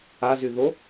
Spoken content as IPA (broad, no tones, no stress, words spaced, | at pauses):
azy ðo